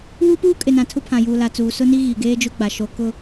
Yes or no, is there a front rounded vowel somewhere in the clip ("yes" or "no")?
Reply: no